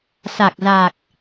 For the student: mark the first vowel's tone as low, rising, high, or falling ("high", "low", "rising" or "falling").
low